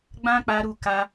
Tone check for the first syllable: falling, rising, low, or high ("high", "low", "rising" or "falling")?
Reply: high